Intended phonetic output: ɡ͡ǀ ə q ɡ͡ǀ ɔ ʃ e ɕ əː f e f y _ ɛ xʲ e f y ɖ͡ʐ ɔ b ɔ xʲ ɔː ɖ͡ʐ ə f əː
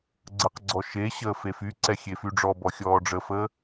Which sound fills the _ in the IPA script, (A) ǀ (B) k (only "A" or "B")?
A